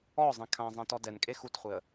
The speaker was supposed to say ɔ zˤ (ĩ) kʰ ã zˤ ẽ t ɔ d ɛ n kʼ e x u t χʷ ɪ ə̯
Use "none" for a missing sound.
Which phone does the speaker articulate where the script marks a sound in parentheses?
ẽ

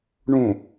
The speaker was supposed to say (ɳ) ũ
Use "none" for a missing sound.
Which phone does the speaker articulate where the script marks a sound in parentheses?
ɳ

